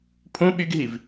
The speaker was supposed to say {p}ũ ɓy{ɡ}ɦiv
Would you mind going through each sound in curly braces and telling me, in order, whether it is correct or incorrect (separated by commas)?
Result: incorrect, correct